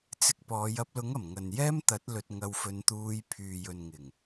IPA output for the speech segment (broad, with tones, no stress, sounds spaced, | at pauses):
t͡s ɪ˨˥ k̚ p ɔː˨˧ j ɐ˧ p̚ l ʊ˨˥ ŋ ɐ˨˩ m ŋ ɐ˨ n j ɛː˥ m t̪ ɐ˨˥ t̚ l ɵ˧ t̚ ŋ ɐ˧ w f ɵ˧ n t̪ uː˧ j pʰ yː˨ j ɵ˨ n ŋ ɪ˨˩ ŋ